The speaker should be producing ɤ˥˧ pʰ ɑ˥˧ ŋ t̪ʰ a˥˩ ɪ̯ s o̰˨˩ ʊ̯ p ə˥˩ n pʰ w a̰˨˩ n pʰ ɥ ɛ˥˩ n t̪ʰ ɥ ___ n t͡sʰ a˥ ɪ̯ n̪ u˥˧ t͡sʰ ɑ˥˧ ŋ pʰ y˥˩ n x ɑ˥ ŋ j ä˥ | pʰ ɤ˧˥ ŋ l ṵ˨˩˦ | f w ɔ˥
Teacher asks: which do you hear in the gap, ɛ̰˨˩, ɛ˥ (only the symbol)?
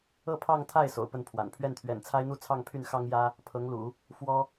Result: ɛ̰˨˩